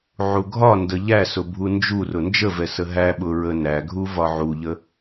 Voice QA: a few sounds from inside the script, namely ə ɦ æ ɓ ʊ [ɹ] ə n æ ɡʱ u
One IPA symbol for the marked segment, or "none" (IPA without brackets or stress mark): ɹ